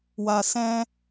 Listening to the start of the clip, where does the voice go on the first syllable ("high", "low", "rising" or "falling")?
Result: low